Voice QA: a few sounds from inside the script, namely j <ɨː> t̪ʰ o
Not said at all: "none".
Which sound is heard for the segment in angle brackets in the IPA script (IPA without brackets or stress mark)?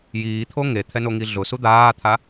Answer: iː